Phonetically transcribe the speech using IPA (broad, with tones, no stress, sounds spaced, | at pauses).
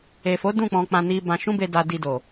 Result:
e˨ f o˨˦ d ũ˦˨ k͡p ɔ̃˧ k͡p ã˧ n i˧ b ã˧ ʃ ũ˦ b e˧ d a˧ d i˧ d o˨